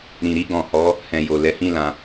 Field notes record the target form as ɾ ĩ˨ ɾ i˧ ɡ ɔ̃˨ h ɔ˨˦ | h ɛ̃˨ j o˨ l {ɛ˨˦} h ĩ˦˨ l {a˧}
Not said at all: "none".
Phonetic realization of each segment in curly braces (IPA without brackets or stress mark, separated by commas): ɛ˨˦, ã˧